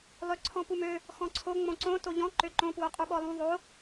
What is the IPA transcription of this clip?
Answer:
lˠøǀʰɔ̃pumø | xɔ̃ǀʰo ŋ͡mõǀõ toʎɔ̃ ǃøǃõ pwoqʼuɓɔlˠũ ðˤo

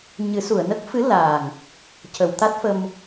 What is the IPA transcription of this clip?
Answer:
ɲɨ˨˩˦su˨˩˨ə̯nə˦˥k̚ fɨ˧˥ la˨˩ŋ | cə˨˩˨wt̪a˦˥t̚fə˧m

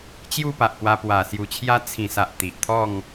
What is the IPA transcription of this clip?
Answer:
t͡ɕju˥˧pa˨ʔpwa˧ pwa˨˩sju˨˩t͡ɕʰja˦ t͡sʰĩ˨˩sa˨ʔ t̪i˨ʔt̪ʰɔ˥˧ŋ

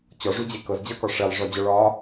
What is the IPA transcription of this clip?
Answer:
t͡ɕɔʐud͡ʑe kɤzd͡ʑɤkɔ ʂelˠʐɔd͡ʑɔ ɭɒ

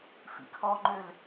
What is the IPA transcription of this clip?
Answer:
fḭkʰɔŋ͡ǃøl

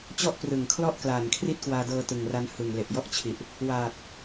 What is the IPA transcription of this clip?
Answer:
t͡ɕɔ˥˩ʔprɯ˨˩ŋkʰlɔ˥˩ʔklaː˨˩n kʰri˥˩t̚kwaː˧dɤː˧ tɯ˨˩ŋra˦˥n hɯ˨˩ŋle˨˩ʔjɔ˥˩ʔt͡ɕʰi˨˩ʔ | wa˨˩t̚

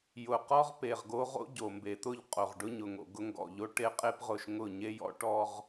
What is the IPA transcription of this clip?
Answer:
jʊ˨qɔ˦ʁpe˨ʁɡo˦ ʁo̰˦ɟo˨mbe˨t̪ʊ˦˨ʎ qʼo˨ʁɖʊ˦ɲʊ˨ŋo̰˨ ɡʊ˦ŋɡɔ̰˨ʎo˦ ʈe˦qʼe˦pʁʊ˨ʃ ŋʊ˦˨ ɲe˦jɔ̰˦ʈɔ˦ʁ

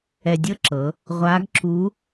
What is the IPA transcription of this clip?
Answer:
ɛ˧dʲɤ˥ǁɤ˩˧ | ʁʷaː˧˥ɡǁu˧˥

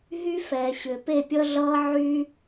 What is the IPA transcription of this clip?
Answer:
ɦy˦fɛː˨ɕʏ˨ pe˦˨pʲʌ˦ɮʌː˦ʕy˦

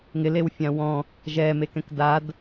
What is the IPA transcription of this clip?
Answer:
ŋɪlewfʲã wɔ̃ | ʒɛmekɛ̃k dad

